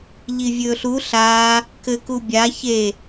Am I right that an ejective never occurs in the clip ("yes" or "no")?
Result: yes